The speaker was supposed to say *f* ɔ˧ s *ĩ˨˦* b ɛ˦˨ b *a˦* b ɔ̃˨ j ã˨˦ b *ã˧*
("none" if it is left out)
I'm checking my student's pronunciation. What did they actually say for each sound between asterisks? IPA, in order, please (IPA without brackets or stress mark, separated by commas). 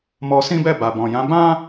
m, ĩ˦, a˨, ã˦